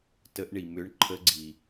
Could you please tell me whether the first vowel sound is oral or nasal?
oral